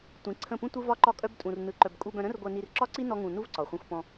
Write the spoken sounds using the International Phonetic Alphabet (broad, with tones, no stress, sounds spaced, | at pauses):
tʷ ĩ˨˦ ǀʰ ə̃˦˨ p ũ˦ tʷ ɯ˦ v ɒ˦ ǃ ɒ˦ kʼ œ˦ b tʼ ũ˧ r n ɯ˧ ǃ œ˧ b kʼ u˧ b œ̃˧ ɾ ə̃˦ r ɡʷ œ˧ n i˧ r ǁ ɒ˦ ǀ i˦ n ɔ˦ ŋ ũ˧ n u˦ v ǀ ɒ˨ χʷ œ̃˧ xʷ p ɔ̃˧